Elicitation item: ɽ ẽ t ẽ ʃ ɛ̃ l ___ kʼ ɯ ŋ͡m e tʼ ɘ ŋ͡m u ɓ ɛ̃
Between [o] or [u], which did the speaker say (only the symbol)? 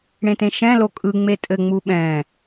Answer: o